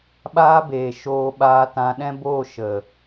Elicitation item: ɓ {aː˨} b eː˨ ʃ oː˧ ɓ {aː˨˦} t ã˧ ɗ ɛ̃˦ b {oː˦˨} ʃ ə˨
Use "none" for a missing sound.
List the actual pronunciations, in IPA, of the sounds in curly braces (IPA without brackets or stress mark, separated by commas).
aː˧, aː˧, oː˦˨